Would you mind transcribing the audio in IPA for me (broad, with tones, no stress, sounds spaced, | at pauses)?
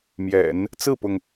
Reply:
m j ɛ̰˨˩˦ n | t͡s ɹ̩˥˩ p ʊ˩ ŋ